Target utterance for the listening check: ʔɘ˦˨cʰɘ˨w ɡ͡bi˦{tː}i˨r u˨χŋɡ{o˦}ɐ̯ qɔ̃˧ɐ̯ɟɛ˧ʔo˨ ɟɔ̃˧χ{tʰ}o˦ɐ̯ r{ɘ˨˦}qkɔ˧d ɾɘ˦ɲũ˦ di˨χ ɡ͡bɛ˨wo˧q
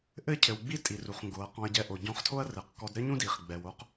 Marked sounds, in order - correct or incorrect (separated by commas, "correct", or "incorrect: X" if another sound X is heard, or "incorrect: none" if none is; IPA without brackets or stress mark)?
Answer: incorrect: tʼ, incorrect: o˨˦, correct, incorrect: ɘ˨